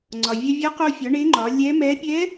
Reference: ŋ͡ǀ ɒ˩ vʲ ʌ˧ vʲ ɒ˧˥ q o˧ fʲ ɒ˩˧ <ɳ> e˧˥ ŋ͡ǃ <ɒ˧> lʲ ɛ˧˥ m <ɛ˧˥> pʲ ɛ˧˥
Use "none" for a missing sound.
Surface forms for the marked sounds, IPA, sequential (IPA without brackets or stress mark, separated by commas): ɳ, ɒ˩˧, ɛ˧˥